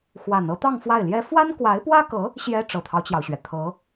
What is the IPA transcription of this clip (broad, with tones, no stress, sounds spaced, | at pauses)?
x w a˨˩ n ɤ˥ t̪ ɑ˥˧ ŋ f w a˥˩ ɪ̯ l j ɛ˥ f w a˥ n k w a˧˥ ɪ̯ p w ä˥ k ɤ˧˥ | ɕ j ɛ˥ ʈ͡ʂ ɤ˨˩ t̪ʰ ɑ˦ ʊ̯ t͡ɕ j ɑ˩ ʊ̯ ɕ ɥ ɛ˩ t̪ʰ ɤ˧˥